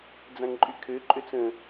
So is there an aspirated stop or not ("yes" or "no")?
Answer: yes